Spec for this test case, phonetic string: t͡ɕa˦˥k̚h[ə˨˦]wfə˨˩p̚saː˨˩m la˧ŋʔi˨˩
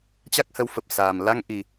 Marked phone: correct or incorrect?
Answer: correct